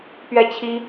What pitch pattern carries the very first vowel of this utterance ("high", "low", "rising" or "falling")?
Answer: falling